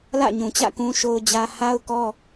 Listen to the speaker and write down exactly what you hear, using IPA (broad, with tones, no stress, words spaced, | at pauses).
lä̰˦˨ɲũ˨t͡ɕä̰˦˨ kũ˦ʃo˦ʊ̯d͡ʑä˦ ha˦ʊ̯kɔ˦